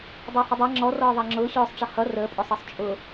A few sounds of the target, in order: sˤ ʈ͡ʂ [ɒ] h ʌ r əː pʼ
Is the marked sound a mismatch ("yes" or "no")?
yes